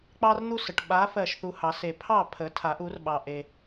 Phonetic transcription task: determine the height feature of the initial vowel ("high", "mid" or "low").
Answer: low